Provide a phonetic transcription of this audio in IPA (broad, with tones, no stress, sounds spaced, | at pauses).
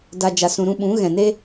d a˧ d͡ʒ a˨ s ũ˨ ɾ ũ˧ ɓ ũ˨˦ ɣ ɛ̃˨ n e˦